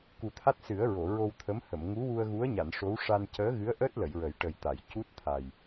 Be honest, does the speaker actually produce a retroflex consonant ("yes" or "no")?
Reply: yes